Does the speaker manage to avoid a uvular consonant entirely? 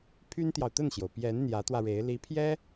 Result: yes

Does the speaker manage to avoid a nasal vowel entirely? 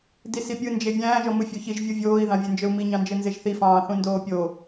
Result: no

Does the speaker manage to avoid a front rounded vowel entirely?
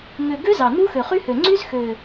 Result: no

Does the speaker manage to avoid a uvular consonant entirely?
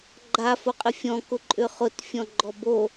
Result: no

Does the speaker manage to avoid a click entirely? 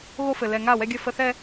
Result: yes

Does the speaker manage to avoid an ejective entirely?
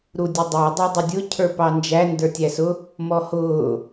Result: yes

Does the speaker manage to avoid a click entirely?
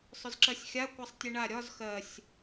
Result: no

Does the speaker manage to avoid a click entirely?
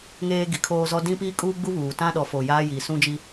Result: yes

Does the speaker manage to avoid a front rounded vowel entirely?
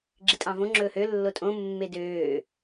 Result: no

